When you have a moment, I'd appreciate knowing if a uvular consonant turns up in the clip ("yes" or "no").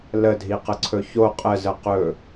yes